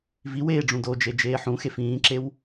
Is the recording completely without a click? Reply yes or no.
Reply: no